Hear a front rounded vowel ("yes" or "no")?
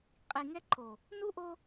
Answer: no